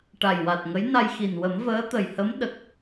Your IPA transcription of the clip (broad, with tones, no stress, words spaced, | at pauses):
ʈa˨˩jwa˨˩t̚ŋə˧˥j na˧jxi˨˩n wə˨˩˦mvəː˧˥t̪ə˨˩jhə˧˥m ɗə˨˩k̚